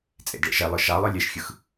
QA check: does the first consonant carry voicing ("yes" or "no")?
no